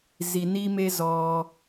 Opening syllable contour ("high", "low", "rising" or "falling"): low